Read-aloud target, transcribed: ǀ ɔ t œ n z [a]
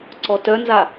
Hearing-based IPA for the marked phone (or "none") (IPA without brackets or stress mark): a